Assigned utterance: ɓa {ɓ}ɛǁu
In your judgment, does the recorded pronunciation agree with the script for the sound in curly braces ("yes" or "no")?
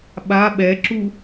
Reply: yes